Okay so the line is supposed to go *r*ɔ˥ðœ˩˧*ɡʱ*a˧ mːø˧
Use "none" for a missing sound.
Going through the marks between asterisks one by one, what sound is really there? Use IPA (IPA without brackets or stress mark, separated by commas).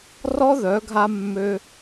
r, ɡʱ